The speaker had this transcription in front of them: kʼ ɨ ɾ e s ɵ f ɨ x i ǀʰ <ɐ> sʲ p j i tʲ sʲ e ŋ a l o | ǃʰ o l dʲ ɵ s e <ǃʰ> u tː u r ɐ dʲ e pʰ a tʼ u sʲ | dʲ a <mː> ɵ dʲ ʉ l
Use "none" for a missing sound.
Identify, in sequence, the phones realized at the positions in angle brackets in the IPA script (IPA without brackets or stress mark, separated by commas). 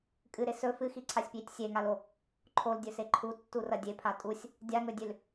a, ǃʰ, ŋ